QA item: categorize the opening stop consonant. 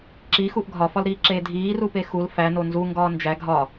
click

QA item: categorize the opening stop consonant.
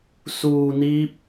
plain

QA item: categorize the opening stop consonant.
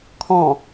aspirated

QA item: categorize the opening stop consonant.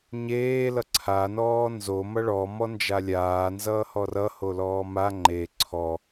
click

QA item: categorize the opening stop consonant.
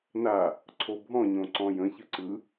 click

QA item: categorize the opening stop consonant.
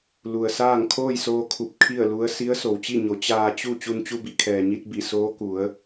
aspirated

